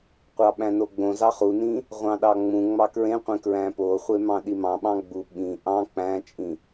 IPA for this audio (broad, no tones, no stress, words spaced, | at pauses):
qʷɑɓæ̃noɡ͡bõ zɑχunĩ | ʁʷɑ̃ɗɑŋ͡mũ ŋ͡mɑkɹẽqʷẽ kɹæ̃po χʷemɑ̃ɗimɑ̃ ɓɑ̃ɡ͡bu ɓĩ ʔɑ̃ k͡pæ̃t͡ʃʼĩ